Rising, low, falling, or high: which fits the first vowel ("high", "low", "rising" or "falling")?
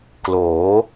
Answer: rising